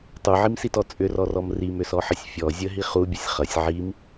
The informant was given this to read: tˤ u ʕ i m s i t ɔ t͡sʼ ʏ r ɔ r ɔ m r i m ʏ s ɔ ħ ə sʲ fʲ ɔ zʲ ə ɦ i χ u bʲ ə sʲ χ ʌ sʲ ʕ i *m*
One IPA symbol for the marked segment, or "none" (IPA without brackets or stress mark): m